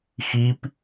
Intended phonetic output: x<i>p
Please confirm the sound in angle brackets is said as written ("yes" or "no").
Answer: yes